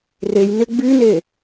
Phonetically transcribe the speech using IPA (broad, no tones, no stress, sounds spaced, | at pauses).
r e j n ɪ ɡ͡b y n e